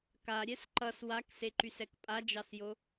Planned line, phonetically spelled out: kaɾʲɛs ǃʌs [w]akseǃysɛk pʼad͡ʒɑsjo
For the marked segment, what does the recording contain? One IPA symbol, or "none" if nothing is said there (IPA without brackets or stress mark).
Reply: w